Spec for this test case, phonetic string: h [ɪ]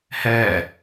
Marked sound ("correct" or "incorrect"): incorrect